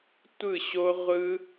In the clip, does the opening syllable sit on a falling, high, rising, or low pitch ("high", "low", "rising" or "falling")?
falling